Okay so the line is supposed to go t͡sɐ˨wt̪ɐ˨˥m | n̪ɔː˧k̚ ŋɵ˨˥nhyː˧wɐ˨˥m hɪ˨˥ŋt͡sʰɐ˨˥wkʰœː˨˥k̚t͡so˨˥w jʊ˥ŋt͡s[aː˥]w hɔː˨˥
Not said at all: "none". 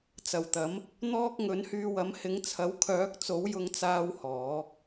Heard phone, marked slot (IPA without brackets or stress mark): aː˥